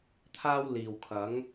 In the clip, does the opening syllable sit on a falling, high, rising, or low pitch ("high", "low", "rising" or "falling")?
high